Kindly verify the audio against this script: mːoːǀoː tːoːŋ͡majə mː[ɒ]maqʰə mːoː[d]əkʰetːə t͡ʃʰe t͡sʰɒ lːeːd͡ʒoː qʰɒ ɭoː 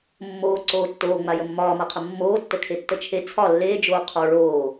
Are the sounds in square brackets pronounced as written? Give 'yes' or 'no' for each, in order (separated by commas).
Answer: no, no